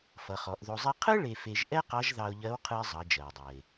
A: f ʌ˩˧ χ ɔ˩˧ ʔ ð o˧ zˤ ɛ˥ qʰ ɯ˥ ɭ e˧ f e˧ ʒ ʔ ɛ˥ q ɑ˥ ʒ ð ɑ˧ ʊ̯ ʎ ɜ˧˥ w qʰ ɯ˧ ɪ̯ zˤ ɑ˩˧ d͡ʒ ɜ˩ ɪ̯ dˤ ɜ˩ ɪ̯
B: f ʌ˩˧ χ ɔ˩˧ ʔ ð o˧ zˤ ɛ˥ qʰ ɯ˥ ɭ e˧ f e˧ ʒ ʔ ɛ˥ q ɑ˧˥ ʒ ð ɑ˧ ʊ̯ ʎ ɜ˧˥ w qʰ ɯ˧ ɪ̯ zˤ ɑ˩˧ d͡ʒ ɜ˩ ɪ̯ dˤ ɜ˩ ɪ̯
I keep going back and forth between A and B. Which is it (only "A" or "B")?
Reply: B